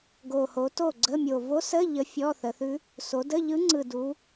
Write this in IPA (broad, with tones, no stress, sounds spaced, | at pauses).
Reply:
ɡ o˨˩ h o˩˧ t o˥˩ ɡ͡ǀ ə˧˥˧ mʲ o˨˩ v o˧˥ s ə˧˥˧ ʎ ə˧˥ fʲ ɔ˧˥˧ θ ə˩˧ θ ʉ˧˥ | s o˩˧ d ə˧˥˧ ʎ ɯ˧˥ ŋ͡ǀ ɯ˨˩ d u˩˧